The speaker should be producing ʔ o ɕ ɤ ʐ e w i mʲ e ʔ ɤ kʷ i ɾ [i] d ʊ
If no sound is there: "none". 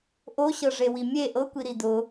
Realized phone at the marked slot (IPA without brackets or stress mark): i